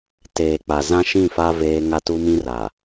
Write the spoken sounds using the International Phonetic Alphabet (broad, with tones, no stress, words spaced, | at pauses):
teː˨k͡pa˨ zã˦ʃĩ˦˨ fa˦veː˦ ŋa˦tu˦mĩ˦raː˨